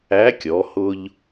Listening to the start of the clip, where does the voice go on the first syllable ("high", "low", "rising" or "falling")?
rising